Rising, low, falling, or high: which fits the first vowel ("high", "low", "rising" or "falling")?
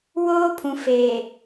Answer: high